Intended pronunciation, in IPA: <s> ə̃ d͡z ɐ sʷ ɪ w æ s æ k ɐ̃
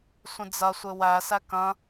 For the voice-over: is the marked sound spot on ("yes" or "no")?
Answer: no